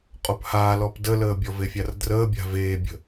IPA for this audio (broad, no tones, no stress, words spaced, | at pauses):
qʼophaː lɔpdələːbʲɔv efʲardrəːbʲa̤ veːbʲə̤